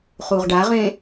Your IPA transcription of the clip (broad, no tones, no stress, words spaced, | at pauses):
χuʁɖaʁẽ